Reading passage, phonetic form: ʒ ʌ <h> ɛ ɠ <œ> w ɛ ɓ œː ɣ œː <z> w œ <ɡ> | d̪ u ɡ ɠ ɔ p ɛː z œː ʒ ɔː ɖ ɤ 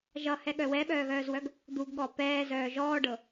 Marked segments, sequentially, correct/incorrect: correct, correct, correct, correct

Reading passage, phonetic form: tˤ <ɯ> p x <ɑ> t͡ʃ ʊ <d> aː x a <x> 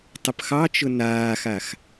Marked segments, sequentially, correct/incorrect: incorrect, correct, incorrect, correct

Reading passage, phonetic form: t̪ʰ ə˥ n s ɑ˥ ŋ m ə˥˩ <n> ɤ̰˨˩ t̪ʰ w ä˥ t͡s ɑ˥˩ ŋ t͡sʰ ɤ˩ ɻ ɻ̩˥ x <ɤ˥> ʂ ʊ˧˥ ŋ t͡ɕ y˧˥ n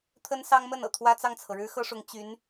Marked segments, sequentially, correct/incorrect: correct, correct

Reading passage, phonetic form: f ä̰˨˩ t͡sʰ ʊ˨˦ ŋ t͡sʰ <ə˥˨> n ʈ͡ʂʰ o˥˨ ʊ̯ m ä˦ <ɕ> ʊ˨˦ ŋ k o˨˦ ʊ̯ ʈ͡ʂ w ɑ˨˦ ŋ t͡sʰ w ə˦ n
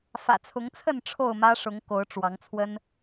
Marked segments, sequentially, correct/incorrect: correct, incorrect

